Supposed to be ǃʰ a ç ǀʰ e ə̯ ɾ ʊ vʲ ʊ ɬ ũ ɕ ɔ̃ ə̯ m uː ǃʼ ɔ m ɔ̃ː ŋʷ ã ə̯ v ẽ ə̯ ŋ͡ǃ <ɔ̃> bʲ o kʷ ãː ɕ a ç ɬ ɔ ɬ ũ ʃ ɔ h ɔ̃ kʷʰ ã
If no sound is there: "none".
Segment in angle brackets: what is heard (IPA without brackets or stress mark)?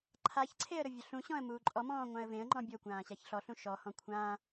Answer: ɔ̃